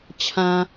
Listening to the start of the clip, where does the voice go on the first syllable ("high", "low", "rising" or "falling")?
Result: low